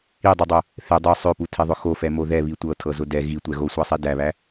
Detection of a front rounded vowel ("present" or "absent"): present